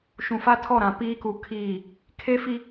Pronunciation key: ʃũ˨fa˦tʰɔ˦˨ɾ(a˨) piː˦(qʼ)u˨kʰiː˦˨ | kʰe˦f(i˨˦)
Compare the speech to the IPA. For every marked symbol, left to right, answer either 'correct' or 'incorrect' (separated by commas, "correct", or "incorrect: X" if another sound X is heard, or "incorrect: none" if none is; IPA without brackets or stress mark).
incorrect: ã˨, incorrect: k, incorrect: i˦